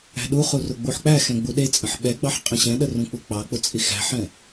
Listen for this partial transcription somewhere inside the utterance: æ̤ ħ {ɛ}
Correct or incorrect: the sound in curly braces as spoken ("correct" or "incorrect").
incorrect